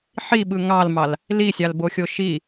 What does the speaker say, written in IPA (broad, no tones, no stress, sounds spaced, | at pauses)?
ħ i ɓ ɯ ŋ ɑ l m ɑ l | l i sʲ ɑ l b o xʲ o ʃ i